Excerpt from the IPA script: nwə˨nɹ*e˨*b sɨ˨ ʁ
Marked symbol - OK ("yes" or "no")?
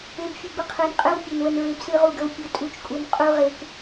yes